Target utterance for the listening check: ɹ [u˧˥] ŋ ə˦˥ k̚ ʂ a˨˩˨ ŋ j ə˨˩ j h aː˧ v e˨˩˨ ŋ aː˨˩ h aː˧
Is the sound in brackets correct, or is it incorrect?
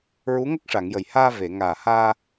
correct